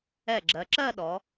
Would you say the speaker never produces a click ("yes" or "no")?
no